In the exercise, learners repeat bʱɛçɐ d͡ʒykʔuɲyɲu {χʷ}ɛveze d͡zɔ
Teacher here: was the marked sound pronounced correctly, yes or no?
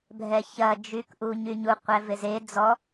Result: no